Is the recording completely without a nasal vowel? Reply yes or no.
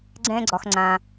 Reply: no